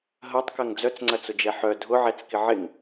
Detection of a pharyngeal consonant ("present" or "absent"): present